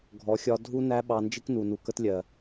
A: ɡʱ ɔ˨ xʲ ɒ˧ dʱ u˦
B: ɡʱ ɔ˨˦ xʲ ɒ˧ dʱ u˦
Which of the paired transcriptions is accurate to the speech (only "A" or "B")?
B